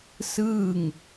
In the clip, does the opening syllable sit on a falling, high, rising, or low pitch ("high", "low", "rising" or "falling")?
falling